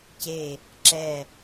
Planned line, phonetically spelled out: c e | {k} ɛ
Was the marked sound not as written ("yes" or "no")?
yes